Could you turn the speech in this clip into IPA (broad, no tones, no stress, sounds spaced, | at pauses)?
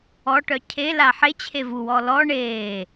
ɔ ʈ œ cʰ e l a ħ e t͡ɕʰ e v u w ɔ l ɔ ɳ eː